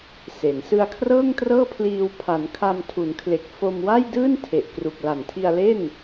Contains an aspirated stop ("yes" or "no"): yes